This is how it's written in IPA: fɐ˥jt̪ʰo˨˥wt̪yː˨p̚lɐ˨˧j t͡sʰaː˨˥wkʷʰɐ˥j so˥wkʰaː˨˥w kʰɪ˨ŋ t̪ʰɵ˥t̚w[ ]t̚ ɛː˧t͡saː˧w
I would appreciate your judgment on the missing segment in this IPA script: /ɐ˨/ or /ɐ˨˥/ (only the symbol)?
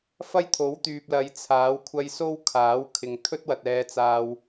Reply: ɐ˨